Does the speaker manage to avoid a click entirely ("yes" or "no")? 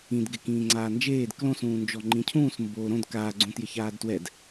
no